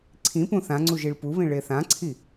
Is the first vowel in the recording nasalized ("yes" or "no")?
yes